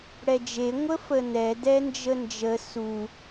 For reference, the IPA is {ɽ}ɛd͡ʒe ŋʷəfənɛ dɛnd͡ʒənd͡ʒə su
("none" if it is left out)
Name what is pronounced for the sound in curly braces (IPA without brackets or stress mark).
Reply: ɽ